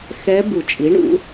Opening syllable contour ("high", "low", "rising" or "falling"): rising